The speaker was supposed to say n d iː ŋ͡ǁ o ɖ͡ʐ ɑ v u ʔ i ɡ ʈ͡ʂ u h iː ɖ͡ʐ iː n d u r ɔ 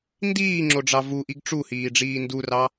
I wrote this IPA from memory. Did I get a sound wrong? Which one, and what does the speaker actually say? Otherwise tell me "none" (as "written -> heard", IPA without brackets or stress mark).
ɔ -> ɑ